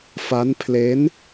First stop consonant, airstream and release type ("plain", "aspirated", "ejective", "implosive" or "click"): aspirated